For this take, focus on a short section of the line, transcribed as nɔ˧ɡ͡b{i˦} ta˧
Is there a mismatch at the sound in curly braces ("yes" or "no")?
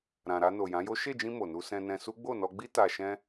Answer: no